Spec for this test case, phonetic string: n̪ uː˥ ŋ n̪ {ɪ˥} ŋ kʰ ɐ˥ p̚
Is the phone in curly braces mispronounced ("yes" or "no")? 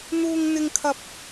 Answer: no